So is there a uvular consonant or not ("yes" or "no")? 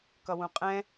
yes